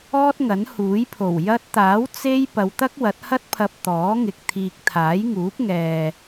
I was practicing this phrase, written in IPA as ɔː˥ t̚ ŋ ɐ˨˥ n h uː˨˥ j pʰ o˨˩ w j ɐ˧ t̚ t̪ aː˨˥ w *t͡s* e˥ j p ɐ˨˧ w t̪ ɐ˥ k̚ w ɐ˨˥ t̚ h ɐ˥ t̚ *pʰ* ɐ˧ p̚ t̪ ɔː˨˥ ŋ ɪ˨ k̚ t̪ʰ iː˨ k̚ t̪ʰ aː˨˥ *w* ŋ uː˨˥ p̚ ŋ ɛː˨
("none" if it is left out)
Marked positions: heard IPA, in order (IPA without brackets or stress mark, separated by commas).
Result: t͡s, pʰ, j